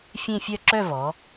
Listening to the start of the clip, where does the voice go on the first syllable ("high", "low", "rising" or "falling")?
falling